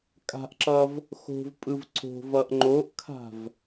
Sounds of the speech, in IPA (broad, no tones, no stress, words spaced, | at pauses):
kʼa̤ʔǁʌv | xo̤vpʼɯv ǀo̤vʌʔ ŋ͡ǃoʔkʰa̤v